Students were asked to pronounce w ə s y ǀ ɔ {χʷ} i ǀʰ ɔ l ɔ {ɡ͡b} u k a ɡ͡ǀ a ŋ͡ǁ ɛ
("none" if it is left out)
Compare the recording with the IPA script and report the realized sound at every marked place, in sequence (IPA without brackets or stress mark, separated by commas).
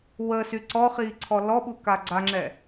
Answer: χ, ɓ